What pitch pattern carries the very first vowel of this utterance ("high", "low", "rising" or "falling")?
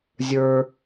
low